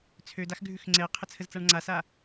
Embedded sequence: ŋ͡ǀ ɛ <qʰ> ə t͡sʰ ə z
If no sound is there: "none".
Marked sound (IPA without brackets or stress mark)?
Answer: qʰ